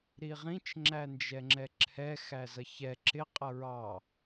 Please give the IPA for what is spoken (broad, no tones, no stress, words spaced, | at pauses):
ɾiʁĩt͡ʃ ŋ͡ǁænd͡ʒɛŋ͡ǁɛǁʰɛ xæzʌçɛ ǁɪ qʼʌɹɑ